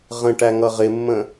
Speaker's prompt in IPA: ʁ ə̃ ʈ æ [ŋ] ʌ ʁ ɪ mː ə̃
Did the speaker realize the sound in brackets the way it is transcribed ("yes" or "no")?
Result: yes